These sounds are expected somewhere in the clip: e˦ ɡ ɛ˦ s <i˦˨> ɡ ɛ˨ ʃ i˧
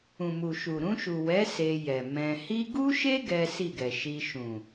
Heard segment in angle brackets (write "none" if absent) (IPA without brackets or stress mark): i˦˨